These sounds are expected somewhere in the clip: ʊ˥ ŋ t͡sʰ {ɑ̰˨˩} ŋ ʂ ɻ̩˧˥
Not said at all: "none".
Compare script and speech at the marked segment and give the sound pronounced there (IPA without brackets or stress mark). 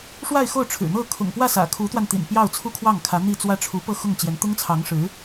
ɑ˧˥